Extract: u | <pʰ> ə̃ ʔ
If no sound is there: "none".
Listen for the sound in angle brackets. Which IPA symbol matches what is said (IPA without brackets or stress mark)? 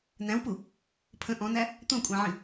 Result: pʰ